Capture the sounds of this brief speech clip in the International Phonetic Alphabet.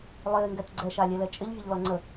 lˠ ɪː ŋ ɡ ɛ t ɡ͡ǀ ɛ ʃ a lʲ ɛ l ɛ t͡ʃʼ ɪ ʎ vʲ ə ʎ l ɔ ŋ͡ǀ ə

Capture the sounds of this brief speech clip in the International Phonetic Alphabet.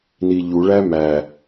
n i ʎ u ɭ æ m æ

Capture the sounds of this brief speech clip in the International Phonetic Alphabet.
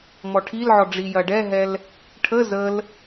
m ɔ ʈʰ i l ʕ ɔ ɖ͡ʐ i j ɐ ɖ ɛ ɦ ɛ l | ʈʰ ə z ə l

